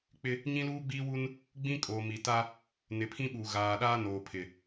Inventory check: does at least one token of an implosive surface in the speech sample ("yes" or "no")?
yes